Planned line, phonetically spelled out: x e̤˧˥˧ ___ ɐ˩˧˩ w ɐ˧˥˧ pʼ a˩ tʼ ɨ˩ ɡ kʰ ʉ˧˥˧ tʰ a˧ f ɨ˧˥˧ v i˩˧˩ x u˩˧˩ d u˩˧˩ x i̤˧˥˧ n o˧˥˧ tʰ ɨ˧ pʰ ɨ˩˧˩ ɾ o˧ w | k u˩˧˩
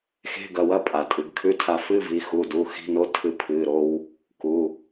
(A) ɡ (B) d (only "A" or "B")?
A